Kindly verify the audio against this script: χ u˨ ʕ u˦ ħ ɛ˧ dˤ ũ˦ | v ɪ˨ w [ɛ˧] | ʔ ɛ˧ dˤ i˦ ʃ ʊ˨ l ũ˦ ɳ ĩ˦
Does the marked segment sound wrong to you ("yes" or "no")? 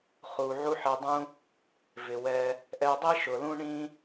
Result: no